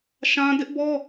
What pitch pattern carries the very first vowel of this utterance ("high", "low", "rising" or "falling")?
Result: high